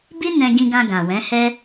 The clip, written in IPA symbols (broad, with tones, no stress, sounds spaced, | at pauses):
b i˦ n ɛ̃˧ ɡ ĩ˧ ɡ ã˧ ɡ ã˨ w ɛ̃˨˦ h ɛ˦